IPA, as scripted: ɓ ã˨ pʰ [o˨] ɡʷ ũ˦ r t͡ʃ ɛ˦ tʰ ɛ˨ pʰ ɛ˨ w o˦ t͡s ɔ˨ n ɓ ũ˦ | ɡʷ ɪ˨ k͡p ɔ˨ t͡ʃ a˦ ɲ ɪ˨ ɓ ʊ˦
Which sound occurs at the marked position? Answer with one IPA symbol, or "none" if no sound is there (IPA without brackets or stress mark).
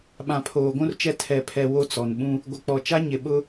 oː˨